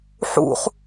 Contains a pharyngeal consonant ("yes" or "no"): yes